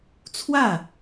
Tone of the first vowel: falling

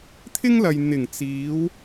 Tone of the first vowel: high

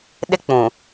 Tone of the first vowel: high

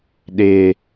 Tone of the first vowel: high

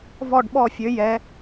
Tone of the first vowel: falling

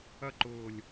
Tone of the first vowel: high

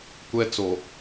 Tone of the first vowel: high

